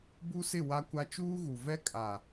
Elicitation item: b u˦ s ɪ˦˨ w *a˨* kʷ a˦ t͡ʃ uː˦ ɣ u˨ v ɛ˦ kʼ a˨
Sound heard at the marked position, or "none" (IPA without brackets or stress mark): a˦